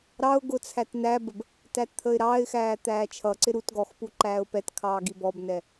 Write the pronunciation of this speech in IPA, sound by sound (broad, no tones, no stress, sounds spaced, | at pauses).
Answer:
ɾ ɑ ʊ̯ ɡ ʊ t͡sʰ æ t n æ b ə b | t æ t t̪ʰ ə ɪ̯ ɾ ɑ ɪ̯ x æː t̪ æː t͡ʃʰ ʌ ǀ ɪ ɾ u t ɡ ɔ x p u ǃ æː ʊ̯ p ɛ t kʰ ɑː ɡ i b ɔ b n ɛ